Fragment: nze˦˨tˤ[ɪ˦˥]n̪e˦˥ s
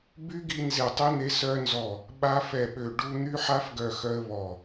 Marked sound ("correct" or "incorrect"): incorrect